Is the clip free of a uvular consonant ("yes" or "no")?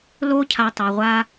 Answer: no